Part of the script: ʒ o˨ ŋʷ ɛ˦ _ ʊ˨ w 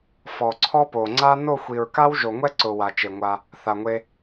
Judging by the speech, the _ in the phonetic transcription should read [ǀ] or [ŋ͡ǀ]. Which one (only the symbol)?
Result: ǀ